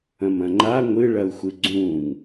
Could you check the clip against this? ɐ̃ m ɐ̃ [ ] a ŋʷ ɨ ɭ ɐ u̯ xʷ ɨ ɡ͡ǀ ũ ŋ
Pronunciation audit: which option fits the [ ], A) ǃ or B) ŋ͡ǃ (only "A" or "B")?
B